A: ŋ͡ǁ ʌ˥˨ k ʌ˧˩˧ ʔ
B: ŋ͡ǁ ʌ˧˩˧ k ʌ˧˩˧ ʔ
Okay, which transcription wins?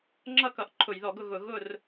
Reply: A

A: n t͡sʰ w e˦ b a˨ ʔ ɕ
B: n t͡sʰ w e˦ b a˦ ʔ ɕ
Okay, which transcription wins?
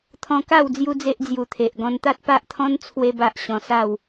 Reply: B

